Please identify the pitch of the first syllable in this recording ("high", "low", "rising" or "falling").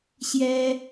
high